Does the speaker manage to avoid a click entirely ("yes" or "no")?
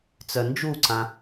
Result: no